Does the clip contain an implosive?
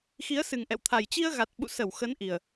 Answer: yes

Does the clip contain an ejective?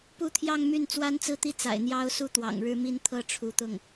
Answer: no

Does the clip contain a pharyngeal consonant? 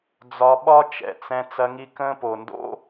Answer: no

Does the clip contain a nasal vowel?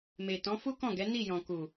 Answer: yes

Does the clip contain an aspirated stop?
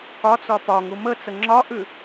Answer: no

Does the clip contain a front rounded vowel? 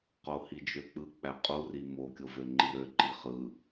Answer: yes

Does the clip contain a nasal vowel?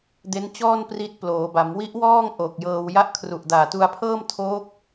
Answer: no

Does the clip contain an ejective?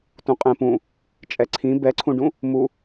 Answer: yes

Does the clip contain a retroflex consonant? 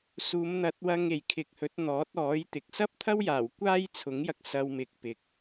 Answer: no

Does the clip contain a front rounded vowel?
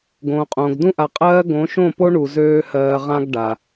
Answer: yes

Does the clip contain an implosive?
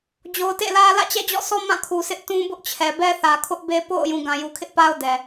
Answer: no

